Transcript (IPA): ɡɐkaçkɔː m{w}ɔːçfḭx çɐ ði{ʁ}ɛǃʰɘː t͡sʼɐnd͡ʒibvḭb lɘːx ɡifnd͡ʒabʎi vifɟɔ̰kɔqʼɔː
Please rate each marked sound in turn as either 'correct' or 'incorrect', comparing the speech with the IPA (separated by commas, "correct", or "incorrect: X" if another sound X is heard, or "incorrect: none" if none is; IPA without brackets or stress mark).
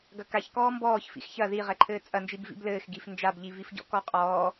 incorrect: b, correct